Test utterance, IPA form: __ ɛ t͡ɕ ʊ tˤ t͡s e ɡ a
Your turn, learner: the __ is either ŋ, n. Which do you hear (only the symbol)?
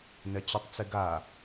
n